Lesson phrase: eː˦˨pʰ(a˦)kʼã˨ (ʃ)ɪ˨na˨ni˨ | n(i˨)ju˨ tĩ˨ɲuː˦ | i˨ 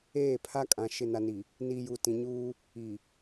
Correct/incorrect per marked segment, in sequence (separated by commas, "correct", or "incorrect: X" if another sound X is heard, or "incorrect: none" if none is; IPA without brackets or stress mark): correct, correct, correct